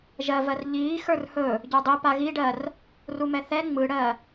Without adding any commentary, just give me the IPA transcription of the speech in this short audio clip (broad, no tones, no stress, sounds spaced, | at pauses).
ʒ ɜ v ɜ r ʎ iː x ə˞ r h ɵ | ɟ ə˞ dˤ i p a ɣ i ɖ ɜ r | r u m ɛ θ ɛ ŋ͡m ɯ ɽ ɜ